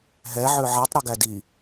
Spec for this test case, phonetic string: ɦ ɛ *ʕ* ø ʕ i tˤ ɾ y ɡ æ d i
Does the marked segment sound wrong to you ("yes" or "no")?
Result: no